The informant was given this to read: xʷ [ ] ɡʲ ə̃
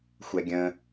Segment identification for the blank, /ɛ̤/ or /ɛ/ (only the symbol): ɛ